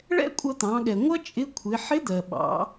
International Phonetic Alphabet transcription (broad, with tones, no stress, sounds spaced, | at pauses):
ɭ ɛ̰˥ kʷʼ ʌ˧ t̪ ɑ̃˩˧ ɠ ɛ˩ ŋʷ ʌ˥ t͡ʃʼ ɪ˧˥ kʷʰ ɪ˩˧ ħ ɪ˧˥ d̪ ɜ˩ ɓ ɑ̰˩˧